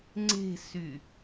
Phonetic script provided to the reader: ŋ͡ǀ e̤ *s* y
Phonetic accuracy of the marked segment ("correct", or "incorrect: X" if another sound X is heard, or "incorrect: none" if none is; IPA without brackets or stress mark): correct